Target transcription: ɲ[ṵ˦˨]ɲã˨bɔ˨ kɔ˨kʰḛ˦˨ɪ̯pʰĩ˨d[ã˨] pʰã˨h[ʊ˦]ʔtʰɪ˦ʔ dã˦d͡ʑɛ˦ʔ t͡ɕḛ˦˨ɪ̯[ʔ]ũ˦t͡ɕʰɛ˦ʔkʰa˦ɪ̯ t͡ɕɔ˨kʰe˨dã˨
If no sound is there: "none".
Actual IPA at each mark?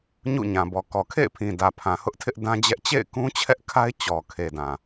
ṵ˦˨, ä˨, ʊ˦, k

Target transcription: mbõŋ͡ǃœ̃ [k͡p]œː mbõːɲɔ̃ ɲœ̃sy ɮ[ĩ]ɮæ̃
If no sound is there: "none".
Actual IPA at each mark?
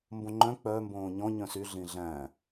k͡p, ĩ

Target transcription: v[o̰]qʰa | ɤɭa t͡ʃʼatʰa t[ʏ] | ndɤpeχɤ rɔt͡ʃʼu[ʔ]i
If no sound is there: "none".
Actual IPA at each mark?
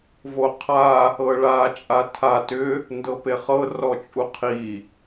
o, ʏ, qʰ

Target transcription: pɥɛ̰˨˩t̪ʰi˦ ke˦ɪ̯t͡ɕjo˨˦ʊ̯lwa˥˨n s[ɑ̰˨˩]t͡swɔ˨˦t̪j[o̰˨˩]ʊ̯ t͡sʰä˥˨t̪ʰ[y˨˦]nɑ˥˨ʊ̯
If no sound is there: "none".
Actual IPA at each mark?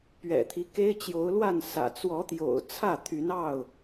ä̰˨˩, o̰˨˩, y˨˦

